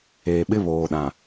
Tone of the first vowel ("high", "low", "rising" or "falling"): low